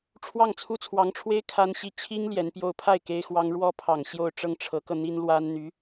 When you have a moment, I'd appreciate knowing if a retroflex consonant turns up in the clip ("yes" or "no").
yes